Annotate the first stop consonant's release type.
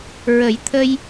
aspirated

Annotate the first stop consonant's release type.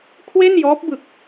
aspirated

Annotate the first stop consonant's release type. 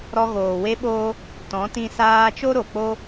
implosive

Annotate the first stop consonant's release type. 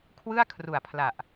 aspirated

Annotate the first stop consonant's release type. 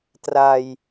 plain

